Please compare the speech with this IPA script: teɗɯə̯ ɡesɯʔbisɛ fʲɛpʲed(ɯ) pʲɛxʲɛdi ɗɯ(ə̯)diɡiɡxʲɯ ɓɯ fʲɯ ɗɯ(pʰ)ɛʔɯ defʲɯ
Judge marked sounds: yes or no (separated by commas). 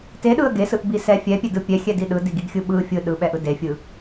yes, no, no